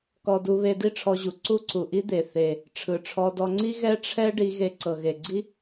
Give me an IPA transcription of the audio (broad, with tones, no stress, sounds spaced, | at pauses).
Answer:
k ɔ˧ d u˧ β e˧ d i˥ ʈ͡ʂʰ ɔ˧ ʑ u˩ ǀ u˥ ǀ u˩ ʔ i˥ d̪ e˩ θ e˩ | ʈ͡ʂʰ ɯ˩ ʈ͡ʂʰ ɔ˧ d ɔ˧ ŋ͡ǀ i˥ ɣ ɛ˥ ʈ͡ʂʰ ɛ˥ ɖ i˧ ɣ e˧ ǀ ɤ˩ ɣ e˩ ɡ͡ǀ i˥